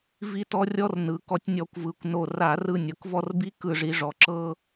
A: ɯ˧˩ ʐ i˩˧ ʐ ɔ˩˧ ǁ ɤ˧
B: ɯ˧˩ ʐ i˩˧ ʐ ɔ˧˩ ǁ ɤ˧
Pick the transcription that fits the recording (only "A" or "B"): A